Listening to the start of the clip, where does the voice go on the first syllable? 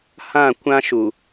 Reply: falling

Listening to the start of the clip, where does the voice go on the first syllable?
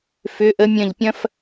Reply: rising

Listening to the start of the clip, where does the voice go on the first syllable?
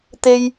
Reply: high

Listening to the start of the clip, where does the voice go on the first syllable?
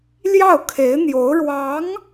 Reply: falling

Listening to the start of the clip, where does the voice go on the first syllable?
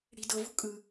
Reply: low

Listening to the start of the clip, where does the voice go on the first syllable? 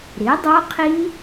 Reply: rising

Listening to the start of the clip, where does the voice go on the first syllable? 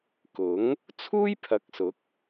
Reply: rising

